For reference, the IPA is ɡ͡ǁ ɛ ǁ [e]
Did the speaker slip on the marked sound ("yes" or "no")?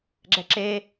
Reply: no